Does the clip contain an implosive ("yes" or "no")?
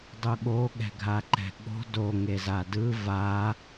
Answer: yes